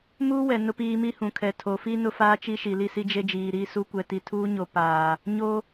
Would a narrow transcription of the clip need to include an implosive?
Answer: no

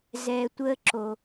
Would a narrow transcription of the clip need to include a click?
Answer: yes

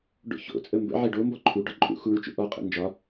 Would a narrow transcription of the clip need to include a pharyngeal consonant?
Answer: yes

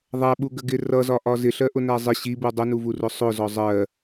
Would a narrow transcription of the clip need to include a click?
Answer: no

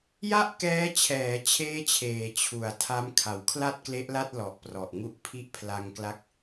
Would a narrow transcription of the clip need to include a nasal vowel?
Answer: no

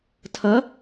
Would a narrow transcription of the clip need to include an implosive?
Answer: no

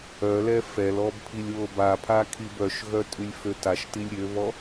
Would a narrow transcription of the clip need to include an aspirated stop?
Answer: yes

